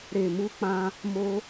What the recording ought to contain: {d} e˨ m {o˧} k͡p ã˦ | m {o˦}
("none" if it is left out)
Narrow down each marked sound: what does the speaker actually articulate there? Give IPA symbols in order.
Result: ɾ, u˧, o˦

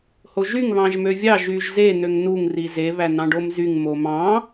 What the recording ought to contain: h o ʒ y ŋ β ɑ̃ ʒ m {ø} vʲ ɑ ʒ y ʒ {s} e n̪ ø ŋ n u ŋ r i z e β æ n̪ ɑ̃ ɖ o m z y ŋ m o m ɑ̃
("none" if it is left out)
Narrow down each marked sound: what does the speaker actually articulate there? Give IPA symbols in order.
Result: ø, z

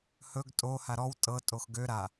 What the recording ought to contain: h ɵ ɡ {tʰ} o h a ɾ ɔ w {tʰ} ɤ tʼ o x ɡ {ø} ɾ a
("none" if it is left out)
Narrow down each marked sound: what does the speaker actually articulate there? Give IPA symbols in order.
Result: tʼ, tʼ, ø

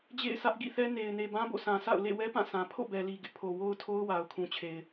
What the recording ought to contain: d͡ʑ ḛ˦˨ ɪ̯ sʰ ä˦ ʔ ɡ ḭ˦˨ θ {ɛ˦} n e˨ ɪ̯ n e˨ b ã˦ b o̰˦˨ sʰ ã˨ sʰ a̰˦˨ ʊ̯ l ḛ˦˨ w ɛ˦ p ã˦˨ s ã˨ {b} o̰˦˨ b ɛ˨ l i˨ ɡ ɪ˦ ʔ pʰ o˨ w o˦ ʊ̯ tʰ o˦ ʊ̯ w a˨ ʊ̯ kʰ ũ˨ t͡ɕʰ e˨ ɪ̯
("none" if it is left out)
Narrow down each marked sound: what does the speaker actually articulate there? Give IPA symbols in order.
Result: ɛ˦, pʰ

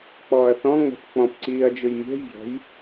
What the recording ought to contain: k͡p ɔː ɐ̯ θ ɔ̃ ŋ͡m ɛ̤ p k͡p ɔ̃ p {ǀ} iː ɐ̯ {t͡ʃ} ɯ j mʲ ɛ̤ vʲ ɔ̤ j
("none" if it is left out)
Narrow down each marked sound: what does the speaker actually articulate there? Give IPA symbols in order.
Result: ǀ, d͡ʒ

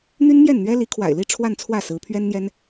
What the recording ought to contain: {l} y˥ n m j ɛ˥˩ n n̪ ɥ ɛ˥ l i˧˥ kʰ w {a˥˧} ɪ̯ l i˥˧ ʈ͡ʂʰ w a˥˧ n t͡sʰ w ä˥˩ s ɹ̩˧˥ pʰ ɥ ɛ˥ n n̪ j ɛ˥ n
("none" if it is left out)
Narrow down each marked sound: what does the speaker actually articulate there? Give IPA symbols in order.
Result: n̪, a̰˨˩

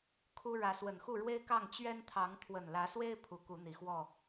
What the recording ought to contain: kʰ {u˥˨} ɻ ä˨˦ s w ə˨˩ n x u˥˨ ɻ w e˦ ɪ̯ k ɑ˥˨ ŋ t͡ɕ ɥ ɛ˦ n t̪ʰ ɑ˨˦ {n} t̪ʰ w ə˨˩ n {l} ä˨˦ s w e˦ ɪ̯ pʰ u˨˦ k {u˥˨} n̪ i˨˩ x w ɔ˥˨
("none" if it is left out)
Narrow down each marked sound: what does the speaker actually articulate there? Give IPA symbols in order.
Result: u˦, ŋ, l, u˨˦

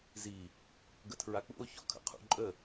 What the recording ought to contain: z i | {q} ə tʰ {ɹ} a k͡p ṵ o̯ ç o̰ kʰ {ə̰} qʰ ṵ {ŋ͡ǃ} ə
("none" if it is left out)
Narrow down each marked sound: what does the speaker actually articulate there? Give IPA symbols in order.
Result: ɡ, ɹ, ə̰, ǃʼ

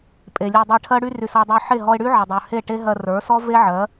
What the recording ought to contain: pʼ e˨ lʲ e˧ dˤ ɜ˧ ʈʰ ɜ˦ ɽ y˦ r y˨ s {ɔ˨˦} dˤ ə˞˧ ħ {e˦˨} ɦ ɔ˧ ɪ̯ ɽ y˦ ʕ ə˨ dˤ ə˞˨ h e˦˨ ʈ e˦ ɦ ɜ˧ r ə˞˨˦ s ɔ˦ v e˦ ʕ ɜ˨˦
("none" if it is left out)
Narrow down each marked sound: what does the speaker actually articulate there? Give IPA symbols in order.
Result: ɔ˧, e˦˨

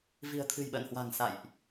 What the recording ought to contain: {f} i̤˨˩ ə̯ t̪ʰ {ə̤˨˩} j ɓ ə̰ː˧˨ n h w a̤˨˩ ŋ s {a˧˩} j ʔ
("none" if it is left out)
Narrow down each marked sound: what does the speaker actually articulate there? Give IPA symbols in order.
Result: v, ɨ̤˨˩, a̰˧˨

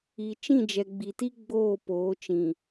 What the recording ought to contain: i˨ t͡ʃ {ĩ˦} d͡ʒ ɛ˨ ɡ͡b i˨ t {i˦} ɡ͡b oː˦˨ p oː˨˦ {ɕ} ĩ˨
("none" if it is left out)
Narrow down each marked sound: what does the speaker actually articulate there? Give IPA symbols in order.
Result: ĩ˦˨, i˦, t͡ʃ

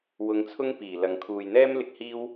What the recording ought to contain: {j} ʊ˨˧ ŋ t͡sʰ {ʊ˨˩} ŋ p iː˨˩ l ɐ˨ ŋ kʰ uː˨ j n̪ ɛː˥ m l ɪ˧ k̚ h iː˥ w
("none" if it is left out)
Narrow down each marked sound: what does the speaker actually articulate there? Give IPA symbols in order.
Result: w, ʊ˥

